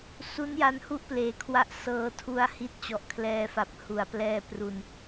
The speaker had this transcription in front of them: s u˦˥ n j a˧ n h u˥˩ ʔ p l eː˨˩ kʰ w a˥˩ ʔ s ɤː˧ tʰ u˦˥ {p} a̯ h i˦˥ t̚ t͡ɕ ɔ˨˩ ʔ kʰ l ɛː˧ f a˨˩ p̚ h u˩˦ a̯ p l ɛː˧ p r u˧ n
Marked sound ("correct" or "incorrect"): incorrect